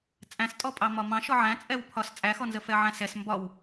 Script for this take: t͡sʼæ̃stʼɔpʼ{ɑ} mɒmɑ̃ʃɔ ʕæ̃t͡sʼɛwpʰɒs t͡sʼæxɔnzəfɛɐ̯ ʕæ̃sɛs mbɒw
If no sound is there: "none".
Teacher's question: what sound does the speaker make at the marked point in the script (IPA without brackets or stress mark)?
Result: ɑ